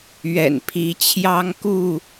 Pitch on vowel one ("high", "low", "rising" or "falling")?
low